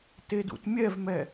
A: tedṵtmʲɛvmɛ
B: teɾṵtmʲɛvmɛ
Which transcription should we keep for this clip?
A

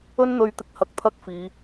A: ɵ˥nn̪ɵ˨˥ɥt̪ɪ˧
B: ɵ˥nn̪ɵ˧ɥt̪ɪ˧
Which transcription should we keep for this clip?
B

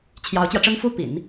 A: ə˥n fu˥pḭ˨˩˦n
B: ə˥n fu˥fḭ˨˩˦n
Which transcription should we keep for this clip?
A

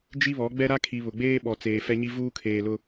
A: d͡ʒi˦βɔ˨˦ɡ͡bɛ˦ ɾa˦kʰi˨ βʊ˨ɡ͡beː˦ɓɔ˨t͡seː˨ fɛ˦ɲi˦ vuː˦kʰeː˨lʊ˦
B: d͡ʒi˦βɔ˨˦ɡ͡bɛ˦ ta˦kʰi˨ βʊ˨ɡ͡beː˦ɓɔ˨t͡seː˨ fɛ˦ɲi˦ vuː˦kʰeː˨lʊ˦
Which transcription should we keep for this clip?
A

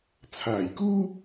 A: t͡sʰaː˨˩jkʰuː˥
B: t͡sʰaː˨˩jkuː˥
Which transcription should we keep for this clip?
B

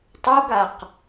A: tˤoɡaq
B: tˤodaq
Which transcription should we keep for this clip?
A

